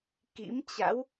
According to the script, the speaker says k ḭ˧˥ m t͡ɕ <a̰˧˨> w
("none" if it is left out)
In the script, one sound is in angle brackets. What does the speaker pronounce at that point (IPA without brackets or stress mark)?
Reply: a̰˧˥